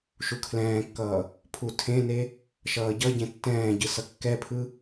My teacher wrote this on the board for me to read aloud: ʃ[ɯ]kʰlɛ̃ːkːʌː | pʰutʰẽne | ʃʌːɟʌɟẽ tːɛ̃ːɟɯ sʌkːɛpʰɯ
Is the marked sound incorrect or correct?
incorrect